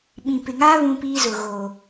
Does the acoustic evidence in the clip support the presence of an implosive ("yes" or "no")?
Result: yes